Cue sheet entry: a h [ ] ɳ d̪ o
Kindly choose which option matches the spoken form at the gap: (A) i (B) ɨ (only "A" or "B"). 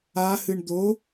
B